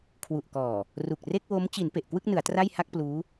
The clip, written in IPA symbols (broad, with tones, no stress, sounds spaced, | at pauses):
kʰ w u˨˩ ʔ k ɔː˨˩ | r u˨˩ k̚ r e˥˩ k̚ w o˦˥ m t͡ɕ i˩˦ n p e˨˩ ʔ k w ɯ˥˩ k̚ n ɯ˩˦ a̯ t r a˥˩ j h a˥˩ k̚ p l uː˦˥